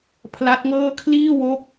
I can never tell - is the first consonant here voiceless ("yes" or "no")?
yes